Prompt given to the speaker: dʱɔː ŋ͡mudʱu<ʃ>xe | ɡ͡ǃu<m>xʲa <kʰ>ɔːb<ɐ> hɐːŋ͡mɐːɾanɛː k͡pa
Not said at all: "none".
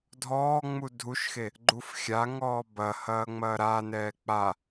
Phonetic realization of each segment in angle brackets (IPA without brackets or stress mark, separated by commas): ʃ, f, ŋ, ɐ